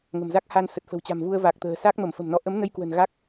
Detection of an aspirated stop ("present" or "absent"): absent